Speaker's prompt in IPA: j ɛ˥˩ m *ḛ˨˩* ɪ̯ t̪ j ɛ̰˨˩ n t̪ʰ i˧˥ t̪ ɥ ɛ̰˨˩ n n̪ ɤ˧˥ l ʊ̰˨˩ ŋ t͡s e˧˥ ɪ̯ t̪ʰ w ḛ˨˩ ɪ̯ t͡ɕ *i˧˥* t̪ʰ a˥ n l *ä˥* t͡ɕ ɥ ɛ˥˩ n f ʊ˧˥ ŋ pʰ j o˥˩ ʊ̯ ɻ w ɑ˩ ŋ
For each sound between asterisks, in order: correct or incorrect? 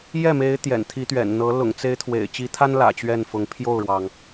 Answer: incorrect, correct, incorrect

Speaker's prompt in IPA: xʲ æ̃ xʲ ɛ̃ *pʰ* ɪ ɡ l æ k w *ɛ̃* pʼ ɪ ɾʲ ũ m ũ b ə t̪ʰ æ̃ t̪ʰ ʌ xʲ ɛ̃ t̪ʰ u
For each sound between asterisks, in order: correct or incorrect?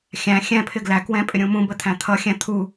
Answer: correct, correct

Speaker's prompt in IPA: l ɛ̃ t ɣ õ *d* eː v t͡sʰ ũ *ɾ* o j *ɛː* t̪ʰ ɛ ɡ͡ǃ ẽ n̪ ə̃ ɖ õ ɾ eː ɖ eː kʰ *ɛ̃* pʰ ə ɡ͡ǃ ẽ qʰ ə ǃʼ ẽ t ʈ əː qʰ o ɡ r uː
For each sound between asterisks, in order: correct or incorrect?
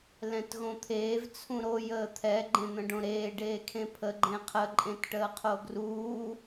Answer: incorrect, correct, incorrect, incorrect

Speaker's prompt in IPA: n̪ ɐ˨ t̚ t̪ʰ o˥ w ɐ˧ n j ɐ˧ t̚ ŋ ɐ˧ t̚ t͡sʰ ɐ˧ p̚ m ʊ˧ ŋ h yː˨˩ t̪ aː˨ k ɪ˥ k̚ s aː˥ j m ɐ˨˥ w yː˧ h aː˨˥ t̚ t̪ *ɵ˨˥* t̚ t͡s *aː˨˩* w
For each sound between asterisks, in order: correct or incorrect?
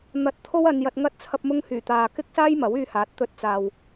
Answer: incorrect, incorrect

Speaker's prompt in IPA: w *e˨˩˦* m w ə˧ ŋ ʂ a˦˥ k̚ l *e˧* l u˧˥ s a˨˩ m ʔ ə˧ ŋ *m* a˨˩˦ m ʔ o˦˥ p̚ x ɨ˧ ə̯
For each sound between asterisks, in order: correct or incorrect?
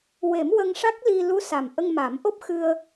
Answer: correct, incorrect, correct

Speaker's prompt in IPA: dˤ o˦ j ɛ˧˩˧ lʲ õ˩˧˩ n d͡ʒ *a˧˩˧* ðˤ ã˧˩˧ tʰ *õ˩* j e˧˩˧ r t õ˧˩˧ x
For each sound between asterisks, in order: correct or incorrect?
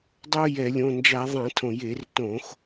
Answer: correct, correct

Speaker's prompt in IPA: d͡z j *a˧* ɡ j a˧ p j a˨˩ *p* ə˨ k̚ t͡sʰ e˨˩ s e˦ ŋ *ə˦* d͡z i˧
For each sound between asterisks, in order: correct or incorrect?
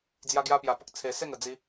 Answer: correct, correct, incorrect

